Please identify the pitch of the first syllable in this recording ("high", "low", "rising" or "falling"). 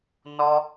high